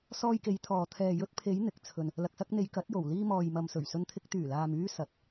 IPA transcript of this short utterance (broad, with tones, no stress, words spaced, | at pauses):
sɔː˧jke˨˧j t̪ʰɔː˨ t̪ʰɛː˨ jɵ˧t̚pʰe˨˧j n̪ɪ˨˥k̚t͡sʰɵ˧n | lɐ˨k̚sɐ˧k̚n̪e˨˧j kɐ˨˥t̚jo˨˩w liː˧mɔː˨jmɐ˨m sɵ˨˩ɥsɵ˧nt̪ʰɪ˧k̚ t̪yː˨˩laː˨myː˧ sɐ˨˥t̚